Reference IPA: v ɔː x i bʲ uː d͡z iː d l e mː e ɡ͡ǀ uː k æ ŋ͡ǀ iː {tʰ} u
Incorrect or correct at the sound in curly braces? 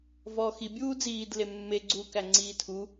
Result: correct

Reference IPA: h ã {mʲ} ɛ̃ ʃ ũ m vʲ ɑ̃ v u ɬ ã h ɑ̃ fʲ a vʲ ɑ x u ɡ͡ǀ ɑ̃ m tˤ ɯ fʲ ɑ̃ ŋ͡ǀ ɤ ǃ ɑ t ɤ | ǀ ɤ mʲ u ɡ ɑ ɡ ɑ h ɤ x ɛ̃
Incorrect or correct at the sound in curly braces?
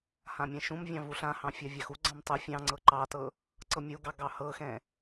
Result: correct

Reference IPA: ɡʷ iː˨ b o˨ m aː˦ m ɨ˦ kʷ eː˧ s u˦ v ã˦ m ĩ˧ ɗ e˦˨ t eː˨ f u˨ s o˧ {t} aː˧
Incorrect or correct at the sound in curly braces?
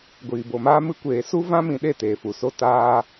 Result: correct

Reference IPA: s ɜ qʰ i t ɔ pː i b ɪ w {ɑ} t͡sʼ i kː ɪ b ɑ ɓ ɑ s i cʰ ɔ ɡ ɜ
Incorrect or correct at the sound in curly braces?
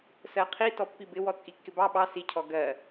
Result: incorrect: ɔ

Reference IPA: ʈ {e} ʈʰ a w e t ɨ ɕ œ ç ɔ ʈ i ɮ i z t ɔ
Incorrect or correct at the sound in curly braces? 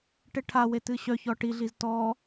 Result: correct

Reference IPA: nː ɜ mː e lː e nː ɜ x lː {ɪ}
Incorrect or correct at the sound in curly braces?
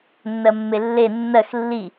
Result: incorrect: i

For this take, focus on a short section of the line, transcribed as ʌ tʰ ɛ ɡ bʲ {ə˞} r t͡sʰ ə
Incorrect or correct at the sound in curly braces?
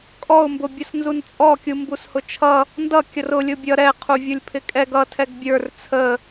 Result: correct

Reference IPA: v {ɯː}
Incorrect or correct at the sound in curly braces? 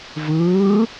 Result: correct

